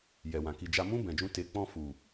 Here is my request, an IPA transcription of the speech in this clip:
jɛ˨wã˨ ki˨d͡ʒa˧mũ˦ bɛ̃˧d͡ʒũ˦ te˧ k͡pɔ̃˧fu˨

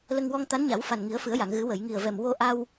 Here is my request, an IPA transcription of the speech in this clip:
lə˧ŋwɔ˧ŋ t̪a˧˥nɲa˨˩˦wfa˨˩n ŋi˨˩˦ə̯fɨ˨˩˦ə̯ja˨˩˨ŋɣɨ˨˩˦ wə˨˩˨jŋi˨˩ə̯vɛ˨˩m wo˧ʔa˧w

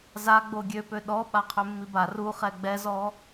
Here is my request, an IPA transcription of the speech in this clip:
za ɡ͡boɡʲøpø ɗɔ ɓaqʰømːiba ruχɛ ɡ͡bɛzɔ

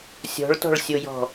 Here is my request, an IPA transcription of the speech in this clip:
sʲɔ̤ɭtɔ̤ɭsʲojɔ̤

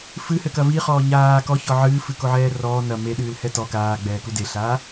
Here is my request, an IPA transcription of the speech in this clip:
fɨhɘkɐ viχɔː ɲaː kɔçɔ ʕɨːfɨkoʕɛː rɔː nɐ meɗɨːlhɛ tɔ kaːɡ͡bɛːku deɬaː

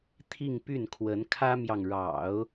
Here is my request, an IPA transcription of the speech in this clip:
t̪ʰi˥˧ŋpy˥˩nkʰwə˧˥n kʰä˥mjɑ˨ŋɻɑ̰˨˩˦ʊ̯

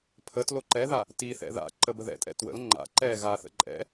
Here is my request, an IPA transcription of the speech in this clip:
pʰətlo ǃɛða | tiθɛ̰ ða̰ ǃəbəðɛ̰tʼɛ̰ twə̰l ŋ͡ǃa̰ ǃɛ ɣaθə̰ ǃʼɛ̰

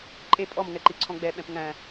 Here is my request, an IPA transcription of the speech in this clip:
ǃʼe pʼɔmŋɛǃi ǀʰɔ̃ɡ͡bɛ ɓɛ̃pŋæ̃

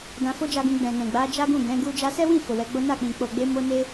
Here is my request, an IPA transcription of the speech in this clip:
dã˧fo˦d͡ʒa˧ɡũ˧ ɡ͡bɛ̃˨nɛ̃˨ɡ͡ba˨˦ d͡ʒa˦ɡũ˦˨ ɡɛ̃˨˦ɡu˦ d͡ʒa˧sɛ˦wĩ˦˨ fo˨wɛ˨˦ɡ͡bo˦ na˦˨k͡pĩ˨ k͡po˨ɡ͡be˧mo˧ ne˦

